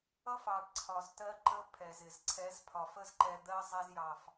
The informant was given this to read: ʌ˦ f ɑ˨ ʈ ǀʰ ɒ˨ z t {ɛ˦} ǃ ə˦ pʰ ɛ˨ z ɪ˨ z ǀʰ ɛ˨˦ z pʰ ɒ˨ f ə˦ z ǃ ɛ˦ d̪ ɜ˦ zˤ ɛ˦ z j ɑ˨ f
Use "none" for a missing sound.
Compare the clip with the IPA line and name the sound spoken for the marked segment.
ɜ˦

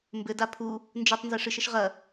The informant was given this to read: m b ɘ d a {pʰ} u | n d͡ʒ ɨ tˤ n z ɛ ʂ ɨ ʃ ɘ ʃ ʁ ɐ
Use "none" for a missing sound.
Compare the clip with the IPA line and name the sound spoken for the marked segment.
pʰ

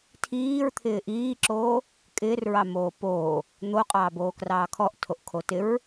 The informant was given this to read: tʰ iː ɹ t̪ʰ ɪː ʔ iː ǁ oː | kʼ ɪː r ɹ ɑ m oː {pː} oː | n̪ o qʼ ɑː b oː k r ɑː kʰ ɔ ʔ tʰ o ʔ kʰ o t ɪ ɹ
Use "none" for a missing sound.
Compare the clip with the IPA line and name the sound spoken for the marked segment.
p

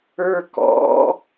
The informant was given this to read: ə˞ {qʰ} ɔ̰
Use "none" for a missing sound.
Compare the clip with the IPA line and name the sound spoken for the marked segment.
k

